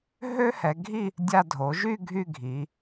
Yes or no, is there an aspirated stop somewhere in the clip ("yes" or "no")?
no